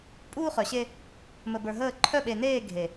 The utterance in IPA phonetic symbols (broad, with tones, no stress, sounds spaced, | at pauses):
pʼ uː˦ χ œ˨ ɕ e˦ | m ə˨ b ə˞˨ ɦ əː˦˨ ǃʰ œ˦˨ ɓ e˨ n eː˦˨ ɡʱ e˨